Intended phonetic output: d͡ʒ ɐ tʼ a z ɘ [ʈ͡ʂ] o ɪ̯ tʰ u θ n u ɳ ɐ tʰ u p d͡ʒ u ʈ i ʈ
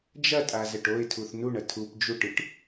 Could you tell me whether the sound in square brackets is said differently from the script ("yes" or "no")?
yes